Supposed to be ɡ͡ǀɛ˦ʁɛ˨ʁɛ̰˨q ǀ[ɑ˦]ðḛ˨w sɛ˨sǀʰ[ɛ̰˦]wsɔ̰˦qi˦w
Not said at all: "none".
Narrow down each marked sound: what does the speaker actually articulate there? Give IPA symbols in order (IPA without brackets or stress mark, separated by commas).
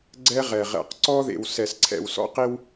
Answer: ɔ˦, ɛ̰˨